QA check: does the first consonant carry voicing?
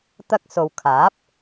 no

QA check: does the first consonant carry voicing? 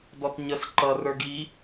yes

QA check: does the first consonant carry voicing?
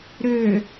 yes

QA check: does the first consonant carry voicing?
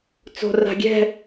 no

